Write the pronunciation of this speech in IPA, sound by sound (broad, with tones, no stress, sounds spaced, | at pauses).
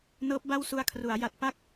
n ɤː˦˥ p̚ b a˥˩ w s u˧ a̯ kʰ r u˩˦ a̯ j a˨˩ t̚ p a˥˩ k̚